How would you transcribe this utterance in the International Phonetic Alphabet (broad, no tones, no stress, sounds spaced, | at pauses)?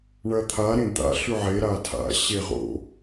ɳ ɐ t̪ʰ a ɾ ẽ d̪ a̰ ɬ ʉ ʕ e ɾ a tʰ a̰ ɕ e ʁ o̰